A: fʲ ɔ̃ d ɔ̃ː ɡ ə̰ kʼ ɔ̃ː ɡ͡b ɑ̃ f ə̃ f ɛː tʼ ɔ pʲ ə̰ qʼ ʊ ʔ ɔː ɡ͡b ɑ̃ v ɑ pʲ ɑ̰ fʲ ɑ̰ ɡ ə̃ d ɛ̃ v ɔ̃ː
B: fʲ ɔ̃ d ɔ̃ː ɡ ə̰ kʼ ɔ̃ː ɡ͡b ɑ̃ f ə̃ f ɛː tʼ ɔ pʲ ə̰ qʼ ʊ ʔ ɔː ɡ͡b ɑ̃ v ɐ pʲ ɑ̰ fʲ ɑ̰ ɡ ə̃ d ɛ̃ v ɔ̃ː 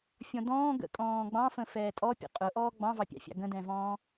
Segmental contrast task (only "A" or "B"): A